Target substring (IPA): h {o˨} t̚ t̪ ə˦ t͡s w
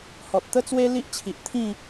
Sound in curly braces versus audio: incorrect: ɔ˨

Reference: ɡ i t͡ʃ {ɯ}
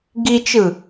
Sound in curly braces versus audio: correct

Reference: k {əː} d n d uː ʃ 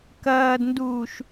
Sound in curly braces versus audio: incorrect: ɐː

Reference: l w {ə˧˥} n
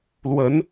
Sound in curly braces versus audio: correct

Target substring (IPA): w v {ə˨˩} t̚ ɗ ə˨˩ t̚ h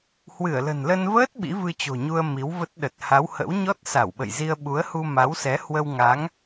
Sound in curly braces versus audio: incorrect: ə˦˥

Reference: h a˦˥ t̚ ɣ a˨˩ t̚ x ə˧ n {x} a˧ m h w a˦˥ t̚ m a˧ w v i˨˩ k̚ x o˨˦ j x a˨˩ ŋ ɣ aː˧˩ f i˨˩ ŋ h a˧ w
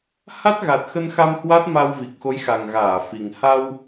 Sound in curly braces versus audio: correct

